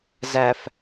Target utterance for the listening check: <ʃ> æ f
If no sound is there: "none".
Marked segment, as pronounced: z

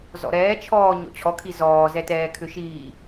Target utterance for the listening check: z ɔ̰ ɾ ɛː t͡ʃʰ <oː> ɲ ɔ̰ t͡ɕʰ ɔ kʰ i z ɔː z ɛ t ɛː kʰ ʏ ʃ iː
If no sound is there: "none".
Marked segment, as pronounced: ɔː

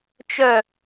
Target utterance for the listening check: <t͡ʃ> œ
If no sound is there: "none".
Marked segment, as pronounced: t͡ʃ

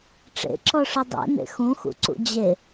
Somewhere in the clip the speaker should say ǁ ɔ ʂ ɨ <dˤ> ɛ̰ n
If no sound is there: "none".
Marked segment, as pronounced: dˤ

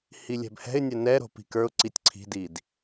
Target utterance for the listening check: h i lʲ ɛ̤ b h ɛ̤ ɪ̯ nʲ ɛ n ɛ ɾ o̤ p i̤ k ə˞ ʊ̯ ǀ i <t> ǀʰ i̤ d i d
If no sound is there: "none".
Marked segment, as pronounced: tʲ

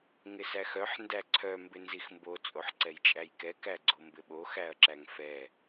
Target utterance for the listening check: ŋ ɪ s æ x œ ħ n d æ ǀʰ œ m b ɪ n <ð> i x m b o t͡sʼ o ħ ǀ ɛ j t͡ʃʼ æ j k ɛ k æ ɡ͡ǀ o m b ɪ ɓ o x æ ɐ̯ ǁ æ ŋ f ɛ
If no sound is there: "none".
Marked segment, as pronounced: z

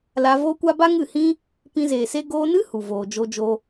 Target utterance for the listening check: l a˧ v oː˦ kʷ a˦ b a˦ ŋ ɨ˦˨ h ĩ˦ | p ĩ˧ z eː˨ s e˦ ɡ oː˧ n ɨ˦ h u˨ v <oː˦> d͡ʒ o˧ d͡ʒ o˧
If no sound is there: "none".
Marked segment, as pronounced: oː˨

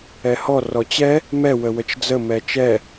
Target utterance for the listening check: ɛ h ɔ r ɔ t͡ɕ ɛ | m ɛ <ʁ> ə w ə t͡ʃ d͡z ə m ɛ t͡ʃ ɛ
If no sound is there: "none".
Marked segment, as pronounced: w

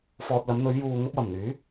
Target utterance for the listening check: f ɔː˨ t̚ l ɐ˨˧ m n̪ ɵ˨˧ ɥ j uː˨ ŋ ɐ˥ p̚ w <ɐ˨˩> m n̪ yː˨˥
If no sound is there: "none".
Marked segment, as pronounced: ɐ˨˩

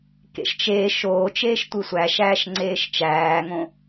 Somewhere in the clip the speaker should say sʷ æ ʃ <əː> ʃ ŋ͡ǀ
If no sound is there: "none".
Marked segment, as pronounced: æː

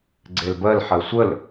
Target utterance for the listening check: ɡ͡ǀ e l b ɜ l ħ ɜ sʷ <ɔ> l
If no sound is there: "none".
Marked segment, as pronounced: ə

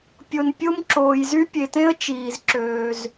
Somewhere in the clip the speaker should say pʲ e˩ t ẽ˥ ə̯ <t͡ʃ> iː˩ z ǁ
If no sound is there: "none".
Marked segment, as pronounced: t͡ʃ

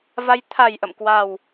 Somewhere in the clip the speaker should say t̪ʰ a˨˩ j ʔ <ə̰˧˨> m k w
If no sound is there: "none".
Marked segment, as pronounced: ə̰˧˨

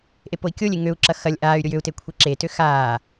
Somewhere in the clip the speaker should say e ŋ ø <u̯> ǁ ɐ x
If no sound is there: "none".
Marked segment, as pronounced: u̯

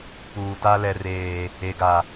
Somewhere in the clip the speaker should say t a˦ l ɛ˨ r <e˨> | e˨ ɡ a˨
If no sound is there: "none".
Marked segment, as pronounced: eː˨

